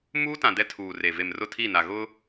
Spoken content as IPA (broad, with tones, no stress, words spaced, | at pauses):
muː˦tã˨ dɛ˦tʰuː˨re˨ ve˨mrʊ˦˨tʰi˦˨na˨ ɣʊ˦